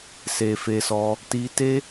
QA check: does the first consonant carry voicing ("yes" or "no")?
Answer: no